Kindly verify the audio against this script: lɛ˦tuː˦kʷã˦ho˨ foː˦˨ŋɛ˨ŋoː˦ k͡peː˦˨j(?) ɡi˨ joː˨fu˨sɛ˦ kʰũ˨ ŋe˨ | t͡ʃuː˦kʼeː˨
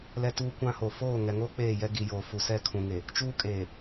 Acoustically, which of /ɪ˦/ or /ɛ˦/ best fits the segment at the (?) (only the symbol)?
ɛ˦